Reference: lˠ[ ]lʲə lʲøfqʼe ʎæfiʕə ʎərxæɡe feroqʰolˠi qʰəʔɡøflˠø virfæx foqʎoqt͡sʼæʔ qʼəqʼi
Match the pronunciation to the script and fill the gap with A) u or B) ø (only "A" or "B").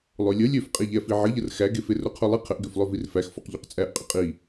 B